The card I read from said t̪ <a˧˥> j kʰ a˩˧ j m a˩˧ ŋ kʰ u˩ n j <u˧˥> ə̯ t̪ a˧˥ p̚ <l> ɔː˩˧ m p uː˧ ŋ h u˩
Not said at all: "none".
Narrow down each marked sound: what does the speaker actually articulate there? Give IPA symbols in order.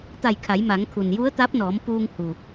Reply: a˧˩, u˧˥, n

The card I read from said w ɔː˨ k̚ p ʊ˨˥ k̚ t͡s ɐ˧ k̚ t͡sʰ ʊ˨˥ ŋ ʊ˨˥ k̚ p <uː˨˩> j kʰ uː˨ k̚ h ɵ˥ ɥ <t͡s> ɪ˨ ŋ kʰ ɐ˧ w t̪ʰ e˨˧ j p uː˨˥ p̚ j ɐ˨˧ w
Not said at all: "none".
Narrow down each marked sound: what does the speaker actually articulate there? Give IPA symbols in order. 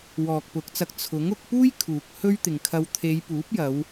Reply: uː˥, t̪

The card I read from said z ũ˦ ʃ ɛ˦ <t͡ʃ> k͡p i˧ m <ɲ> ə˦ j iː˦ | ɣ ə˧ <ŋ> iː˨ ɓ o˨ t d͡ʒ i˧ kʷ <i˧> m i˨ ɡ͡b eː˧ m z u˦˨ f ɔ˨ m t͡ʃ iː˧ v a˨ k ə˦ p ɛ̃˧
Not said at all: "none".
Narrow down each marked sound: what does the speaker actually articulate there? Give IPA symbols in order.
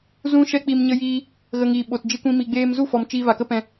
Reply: none, ɲ, ŋ, ĩ˧

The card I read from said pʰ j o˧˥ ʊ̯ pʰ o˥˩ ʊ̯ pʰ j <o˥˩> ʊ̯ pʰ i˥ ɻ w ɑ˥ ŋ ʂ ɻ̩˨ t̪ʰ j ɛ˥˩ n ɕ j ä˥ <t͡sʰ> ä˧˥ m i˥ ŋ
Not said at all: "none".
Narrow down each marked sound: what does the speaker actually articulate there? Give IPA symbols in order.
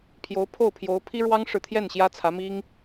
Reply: o˧˥, t͡sʰ

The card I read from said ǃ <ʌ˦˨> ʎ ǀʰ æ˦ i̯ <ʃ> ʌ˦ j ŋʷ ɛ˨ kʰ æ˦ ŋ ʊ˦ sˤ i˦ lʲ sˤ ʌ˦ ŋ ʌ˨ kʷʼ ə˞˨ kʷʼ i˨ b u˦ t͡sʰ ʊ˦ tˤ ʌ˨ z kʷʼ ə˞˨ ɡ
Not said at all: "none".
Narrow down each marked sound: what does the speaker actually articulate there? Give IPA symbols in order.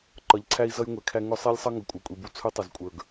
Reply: ʌ˨˦, z

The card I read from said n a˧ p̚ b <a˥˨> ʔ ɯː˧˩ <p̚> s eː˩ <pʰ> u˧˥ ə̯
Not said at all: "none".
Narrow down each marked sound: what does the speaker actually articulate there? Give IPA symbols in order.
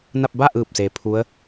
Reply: a˥˨, p̚, pʰ

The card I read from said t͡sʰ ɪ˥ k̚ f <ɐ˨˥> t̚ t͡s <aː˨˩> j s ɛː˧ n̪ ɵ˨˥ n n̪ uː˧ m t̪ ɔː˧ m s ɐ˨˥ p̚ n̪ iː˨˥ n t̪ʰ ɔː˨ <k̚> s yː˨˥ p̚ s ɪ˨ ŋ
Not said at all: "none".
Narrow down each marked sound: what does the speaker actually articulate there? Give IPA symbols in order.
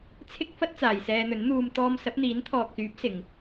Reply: ɐ˥, aː˨, k̚

